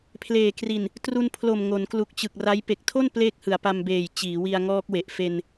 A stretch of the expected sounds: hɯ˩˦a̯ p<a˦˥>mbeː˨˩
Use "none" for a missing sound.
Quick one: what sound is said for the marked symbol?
a˧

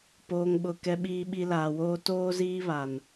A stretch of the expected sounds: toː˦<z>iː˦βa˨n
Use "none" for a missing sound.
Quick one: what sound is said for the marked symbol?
z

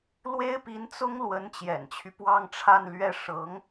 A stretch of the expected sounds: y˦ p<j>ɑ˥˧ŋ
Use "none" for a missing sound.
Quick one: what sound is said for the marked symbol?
w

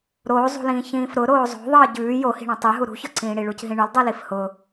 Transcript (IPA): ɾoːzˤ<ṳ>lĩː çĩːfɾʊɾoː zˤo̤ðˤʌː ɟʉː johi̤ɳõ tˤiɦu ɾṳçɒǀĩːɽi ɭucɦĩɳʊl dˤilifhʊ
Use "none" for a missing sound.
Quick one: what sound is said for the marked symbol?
ṳ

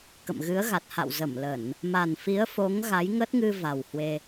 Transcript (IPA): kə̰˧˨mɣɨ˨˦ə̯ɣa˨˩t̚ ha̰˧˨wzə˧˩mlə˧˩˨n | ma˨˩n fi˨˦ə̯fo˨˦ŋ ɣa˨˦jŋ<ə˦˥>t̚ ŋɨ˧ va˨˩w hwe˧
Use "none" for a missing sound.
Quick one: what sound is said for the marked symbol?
ə˦˥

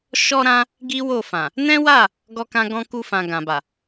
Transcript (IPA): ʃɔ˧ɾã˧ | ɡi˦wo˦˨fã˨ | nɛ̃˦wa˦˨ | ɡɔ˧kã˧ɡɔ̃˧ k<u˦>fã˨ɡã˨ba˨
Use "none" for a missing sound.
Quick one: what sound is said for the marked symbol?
u˧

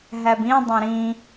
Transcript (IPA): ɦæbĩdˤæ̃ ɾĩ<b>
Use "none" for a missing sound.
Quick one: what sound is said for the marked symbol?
none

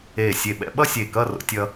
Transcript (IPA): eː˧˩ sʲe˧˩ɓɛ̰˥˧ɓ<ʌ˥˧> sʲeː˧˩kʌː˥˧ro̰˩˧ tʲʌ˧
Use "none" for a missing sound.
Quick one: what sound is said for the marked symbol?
ʌ˥˧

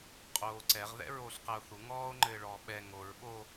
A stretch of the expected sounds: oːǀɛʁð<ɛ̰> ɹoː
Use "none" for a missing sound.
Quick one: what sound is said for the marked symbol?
ɛ̰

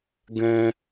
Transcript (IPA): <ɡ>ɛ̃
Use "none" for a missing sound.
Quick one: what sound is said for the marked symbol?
ɡ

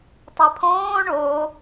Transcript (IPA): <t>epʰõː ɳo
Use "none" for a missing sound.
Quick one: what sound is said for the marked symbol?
tˤ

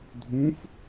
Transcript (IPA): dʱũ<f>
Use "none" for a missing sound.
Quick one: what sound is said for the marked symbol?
f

